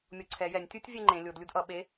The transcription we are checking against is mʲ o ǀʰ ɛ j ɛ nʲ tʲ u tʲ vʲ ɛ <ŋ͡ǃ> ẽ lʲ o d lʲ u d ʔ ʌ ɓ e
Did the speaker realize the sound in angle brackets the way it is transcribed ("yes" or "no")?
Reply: yes